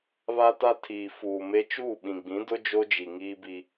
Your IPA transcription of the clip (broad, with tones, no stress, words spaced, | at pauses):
βa˦ta˦tʰiː˨ fuː˨me˦ t͡ʃuː˦˨ɓĩ˨ɡ͡bĩ˨˦dʊ˦ d͡ʒo˦d͡ʒi˨ ŋiː˦bi˦